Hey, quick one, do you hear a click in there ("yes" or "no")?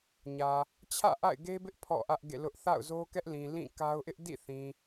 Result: no